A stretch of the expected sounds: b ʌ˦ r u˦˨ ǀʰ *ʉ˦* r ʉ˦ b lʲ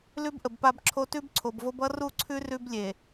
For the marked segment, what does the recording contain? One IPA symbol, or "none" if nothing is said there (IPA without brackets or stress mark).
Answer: ʉ˦